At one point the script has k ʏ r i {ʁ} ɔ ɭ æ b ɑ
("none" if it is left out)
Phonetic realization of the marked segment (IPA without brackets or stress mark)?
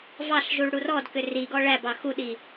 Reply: ɡ